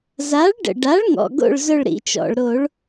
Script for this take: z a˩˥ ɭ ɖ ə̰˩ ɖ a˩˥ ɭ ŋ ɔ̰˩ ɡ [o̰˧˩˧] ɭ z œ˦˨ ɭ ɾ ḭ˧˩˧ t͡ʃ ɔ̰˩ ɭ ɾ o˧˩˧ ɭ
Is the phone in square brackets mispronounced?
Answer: yes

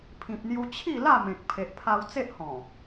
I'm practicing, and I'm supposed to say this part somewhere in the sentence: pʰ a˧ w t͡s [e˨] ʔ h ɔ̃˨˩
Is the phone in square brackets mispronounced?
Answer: yes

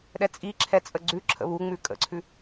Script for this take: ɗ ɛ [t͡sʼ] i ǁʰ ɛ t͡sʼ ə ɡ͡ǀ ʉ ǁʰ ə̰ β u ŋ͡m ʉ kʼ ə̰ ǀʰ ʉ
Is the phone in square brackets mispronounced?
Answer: no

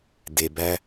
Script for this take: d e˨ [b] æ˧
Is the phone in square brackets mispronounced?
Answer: no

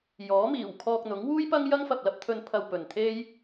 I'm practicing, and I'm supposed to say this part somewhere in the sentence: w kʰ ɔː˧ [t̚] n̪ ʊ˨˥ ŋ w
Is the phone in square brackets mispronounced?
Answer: yes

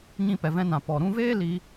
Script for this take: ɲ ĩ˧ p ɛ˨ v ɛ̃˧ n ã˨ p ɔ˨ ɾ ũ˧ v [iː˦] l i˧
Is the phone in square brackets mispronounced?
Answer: yes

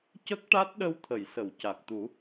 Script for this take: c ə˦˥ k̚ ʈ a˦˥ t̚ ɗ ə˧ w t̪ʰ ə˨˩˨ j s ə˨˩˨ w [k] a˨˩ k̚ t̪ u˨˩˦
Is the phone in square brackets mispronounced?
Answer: yes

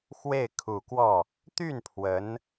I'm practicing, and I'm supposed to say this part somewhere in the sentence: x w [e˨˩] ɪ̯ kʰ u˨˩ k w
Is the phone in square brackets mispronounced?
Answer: yes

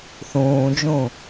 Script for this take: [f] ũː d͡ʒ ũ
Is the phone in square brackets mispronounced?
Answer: yes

